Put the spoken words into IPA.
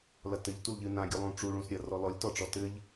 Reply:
l ɐ t ɘ ʎ t u l ʎ ɨ n ã ɡʲ u lˠ ũ ʈ͡ʂ u ɭ ũ s ɾʲ ɐ r ɔ l ɔ lʲ t ɔ ʈ͡ʂ ɔ t ɘ ʎ

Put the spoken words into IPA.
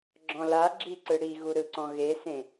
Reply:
ɡ͡ǁ ɔ̃ l a ɡ͡ǁ i ǀ ɯ ɽ i ɣ u ɾ ɯ ǀ ɔ̃ ɣ e s ẽ

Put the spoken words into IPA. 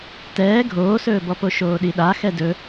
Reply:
t ɛː ɡʱ oː s ɵː b ɔ p o ʃ oː ɗ i ɗ a x ɛ d ɵ

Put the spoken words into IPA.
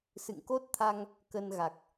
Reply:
s ɨ̰˧˨ ŋ k o˦˥ t̚ t̪ʰ a˧ ŋ | k ə˧ n ɣ a˨˩ k̚

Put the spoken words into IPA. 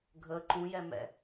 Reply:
ɡʱ ə ǃ ũ j ɛ m ɛ̰

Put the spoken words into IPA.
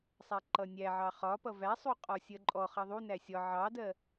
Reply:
sˤ æ ǃ ʌ nʲ æ ʕ ɑ χ ɒ p ʌ v æ sˤ u qʼ ɔ sʲ ɜ ǃʼ ɔ χ ʌ ðˤ u n æ sʲ ɒ ʕ ɑ d ɜ

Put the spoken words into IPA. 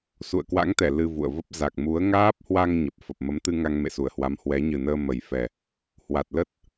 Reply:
s ṵ˧˨ ə̯ k w a̰˧˥ ŋ t̪ ɛ˧˩ l ɨ˧ v ṵ˧˨ ə̯ v ə˦˥ p̚ z a˨˩ k̚ m u˨˦ ə̯ ŋ aː˦˥ p̚ h w a˧ ŋ ɲ ə˨˩ p̚ f ə˨˩ p̚ m ə˨˦ m t̪ ɨ˧ ŋ a˧ ŋ m ḛ˧˨ s u˧˩ ə̯ h w a˨˦ m h w ɛ˨˦ ɲ ɨ˨˩ n əː˧ m ə˨˩ j f ɛ˨˩ | h w a˨˩ t̚ l ə˦˥ t̚

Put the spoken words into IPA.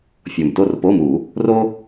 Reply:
fʲ o˨˩ m t o˦˨ r p o˧˥˧ m u˨˩˦ | r o˥

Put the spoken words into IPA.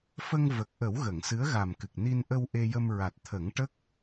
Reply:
f ə˧ ŋ v ə˨˩ k̚ ʔ ə˨˩˦ w ɣ ə˨˩˨ ŋ s ɨ˧˥ ə̯ ɣ a˨˩ m k ɨ˨˩ k̚ n i˧ n ʔ ə˧ w ʔ e˧ j ə˧ m ɹ a˨˩ t̚ t̪ʰ ə˨˩˦ ŋ ʈ ə˦˥ k̚

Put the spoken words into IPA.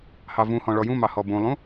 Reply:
h ɑ v ũ h ɔ̃ ɭ ɔ j ũ m ɑ h ɔ b ũ lˠ ũ

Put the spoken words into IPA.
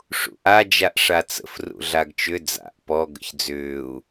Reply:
ʂ ṵ ʔ a d͡ʒ a ʔ ʂ a t͡s ə̰ f r ṵ ɮ a ɡ t͡ʃ ʏ d͡z a̰ ʔ p ɔ ɡ ə̰ ç d͡z ʏː u̯

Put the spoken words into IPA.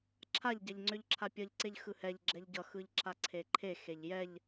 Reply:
ǁʰ a ʎ ɟ ɛ ʎ ŋ͡ǀ ʏ ʎ ǁʰ a pʲ ʌ ʎ ǀ e ʎ x ɯ h ɛ ʎ ɡ͡ǁ ɛ ʎ ɟ ʌ x ɯ ʎ ǁ a ǀʰ e ǃʰ e x e ʎ j ɛ ʎ

